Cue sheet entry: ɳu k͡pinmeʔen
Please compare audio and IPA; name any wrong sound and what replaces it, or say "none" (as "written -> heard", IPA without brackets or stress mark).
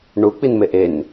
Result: none